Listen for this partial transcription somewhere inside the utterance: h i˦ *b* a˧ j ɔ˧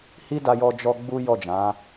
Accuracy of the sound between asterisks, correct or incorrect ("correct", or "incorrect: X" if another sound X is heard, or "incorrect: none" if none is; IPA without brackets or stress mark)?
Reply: incorrect: d